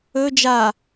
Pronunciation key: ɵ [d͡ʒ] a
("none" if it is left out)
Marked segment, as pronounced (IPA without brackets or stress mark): d͡ʒ